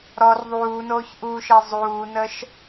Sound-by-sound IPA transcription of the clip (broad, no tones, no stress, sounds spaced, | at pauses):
ɾ ɔ r ðˤ uː n oː ç ʔ uː ʃ e zˤ uː n ə ʃ